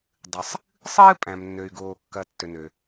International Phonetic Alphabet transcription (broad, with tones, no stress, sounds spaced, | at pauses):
dˤ ɨ˩ sˤ | sˤ ɨː˥ pʼ æ̃˩ m nː ø˩ y̯ ɡ oː˩ kː ɐ˩ tː ø˩ n ø˩